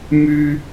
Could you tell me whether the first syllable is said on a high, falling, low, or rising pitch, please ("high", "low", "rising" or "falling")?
high